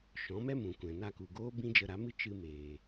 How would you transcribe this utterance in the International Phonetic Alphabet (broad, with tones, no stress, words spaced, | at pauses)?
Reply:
ʃɔ̃˨˦mɛ˦mũ˨kʷɛ̃˨ na˧ku˨ɡoː˦ bĩ˦d͡ʒə˧ɾa˨˦mɨ˦ t͡ʃɨ˧meː˨